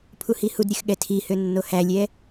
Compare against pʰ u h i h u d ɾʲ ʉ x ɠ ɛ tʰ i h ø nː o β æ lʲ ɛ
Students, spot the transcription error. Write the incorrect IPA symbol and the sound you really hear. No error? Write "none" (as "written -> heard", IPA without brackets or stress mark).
β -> h